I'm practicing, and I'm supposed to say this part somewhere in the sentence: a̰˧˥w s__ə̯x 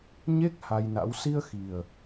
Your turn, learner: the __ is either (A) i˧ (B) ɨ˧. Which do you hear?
A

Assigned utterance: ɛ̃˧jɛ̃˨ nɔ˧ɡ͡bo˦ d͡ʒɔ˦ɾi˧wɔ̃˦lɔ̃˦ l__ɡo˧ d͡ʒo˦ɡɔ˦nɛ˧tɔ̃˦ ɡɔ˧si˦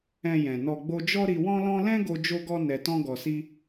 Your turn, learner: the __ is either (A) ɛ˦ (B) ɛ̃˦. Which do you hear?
B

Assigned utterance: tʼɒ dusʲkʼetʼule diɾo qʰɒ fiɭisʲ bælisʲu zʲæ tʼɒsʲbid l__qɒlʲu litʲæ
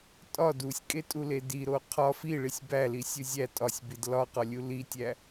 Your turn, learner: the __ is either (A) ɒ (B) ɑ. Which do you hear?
A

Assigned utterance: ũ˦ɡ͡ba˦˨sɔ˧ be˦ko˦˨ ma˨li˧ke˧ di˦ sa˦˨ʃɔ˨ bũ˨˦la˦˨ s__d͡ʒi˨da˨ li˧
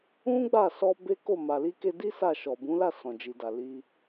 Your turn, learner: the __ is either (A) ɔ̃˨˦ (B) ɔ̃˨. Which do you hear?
B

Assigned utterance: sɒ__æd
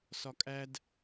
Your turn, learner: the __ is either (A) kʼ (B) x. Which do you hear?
A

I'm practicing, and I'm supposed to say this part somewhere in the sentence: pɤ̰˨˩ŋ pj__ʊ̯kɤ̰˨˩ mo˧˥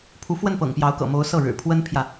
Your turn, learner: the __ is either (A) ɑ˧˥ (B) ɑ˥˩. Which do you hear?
A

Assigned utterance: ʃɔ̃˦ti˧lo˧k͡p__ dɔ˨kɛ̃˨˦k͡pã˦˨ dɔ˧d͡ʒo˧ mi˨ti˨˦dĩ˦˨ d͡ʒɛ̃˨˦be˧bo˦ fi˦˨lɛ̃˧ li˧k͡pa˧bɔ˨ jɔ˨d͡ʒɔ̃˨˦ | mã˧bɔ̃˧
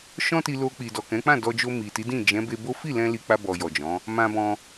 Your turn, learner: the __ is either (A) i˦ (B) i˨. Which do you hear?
B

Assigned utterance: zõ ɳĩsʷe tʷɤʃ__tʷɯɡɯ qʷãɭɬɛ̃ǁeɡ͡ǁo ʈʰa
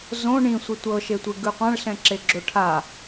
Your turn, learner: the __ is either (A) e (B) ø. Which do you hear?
A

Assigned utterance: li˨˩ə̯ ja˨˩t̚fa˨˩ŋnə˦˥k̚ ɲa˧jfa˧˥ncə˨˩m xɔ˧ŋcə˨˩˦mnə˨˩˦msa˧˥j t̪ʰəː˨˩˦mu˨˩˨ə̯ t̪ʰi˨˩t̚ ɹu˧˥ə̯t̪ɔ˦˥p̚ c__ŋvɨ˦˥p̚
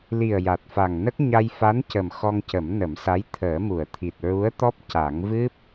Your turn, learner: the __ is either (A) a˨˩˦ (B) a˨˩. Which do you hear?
A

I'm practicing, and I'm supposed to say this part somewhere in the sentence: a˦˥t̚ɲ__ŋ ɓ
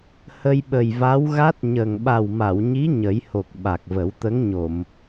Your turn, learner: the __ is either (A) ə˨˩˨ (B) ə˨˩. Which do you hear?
B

